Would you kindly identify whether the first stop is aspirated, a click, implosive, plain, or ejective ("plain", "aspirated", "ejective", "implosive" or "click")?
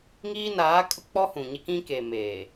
ejective